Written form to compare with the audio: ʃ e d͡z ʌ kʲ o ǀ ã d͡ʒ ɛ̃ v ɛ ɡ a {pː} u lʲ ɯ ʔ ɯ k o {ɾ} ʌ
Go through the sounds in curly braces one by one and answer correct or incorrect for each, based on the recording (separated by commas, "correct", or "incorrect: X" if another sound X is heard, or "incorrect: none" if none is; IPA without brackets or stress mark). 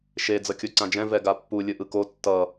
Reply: correct, incorrect: tː